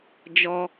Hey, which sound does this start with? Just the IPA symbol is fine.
d͡ʒ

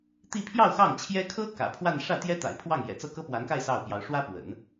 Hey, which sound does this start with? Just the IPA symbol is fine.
t̪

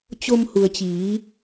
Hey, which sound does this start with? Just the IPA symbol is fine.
t͡ɕ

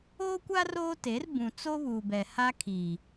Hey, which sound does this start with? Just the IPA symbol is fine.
oː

